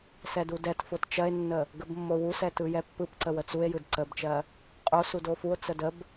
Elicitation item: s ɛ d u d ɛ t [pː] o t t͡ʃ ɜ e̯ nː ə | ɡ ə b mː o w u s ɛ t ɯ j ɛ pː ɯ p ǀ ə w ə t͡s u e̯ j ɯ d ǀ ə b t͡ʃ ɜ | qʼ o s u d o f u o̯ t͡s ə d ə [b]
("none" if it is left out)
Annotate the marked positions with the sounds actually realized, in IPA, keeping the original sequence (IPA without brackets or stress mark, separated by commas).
f, b